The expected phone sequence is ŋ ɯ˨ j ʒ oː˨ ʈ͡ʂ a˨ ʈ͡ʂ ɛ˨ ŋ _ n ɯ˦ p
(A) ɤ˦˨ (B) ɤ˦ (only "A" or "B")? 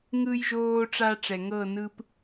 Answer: A